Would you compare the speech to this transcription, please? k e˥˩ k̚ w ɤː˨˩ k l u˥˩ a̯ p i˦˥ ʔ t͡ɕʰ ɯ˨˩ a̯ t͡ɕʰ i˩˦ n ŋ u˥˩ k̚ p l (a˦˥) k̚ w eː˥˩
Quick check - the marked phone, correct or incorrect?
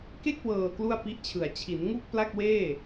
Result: incorrect